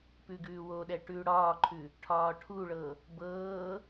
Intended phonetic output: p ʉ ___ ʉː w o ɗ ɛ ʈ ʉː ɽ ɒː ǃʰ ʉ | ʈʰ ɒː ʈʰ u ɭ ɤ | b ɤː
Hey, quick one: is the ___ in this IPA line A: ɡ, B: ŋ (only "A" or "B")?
A